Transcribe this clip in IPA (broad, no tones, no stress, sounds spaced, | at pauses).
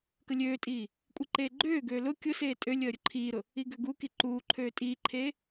k ə lʲ øː tʼ iː | kʷʼ i ǃ eː ɡ͡ǃ øː ɡ øː l ʊ kʲ ʊ s eː tʼ ø lʲ əː ɾʲ ʊ ǃʰ iː ɾ ʊ | i ɡ ø ɡ u k i ǃ uː ǃʰ øː tʼ iː ǃʰ eː